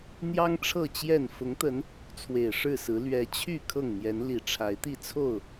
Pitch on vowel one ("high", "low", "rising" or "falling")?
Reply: high